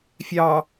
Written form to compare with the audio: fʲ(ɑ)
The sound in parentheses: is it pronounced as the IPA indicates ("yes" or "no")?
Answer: yes